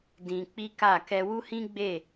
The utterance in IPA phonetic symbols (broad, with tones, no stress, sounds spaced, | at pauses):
d ĩ˧ k͡p i˦ k a˦˨ k ɛ˧ w u˦ h ĩ˦ ɡ͡b e˦˨